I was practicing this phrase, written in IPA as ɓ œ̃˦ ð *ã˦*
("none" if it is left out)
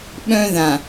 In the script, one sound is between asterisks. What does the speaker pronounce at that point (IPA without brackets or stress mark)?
ã˨